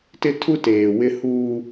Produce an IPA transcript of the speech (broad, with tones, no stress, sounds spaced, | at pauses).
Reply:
t ɪ˦ tʰ u˦ t eː˨ w ɪ˦ h uː˦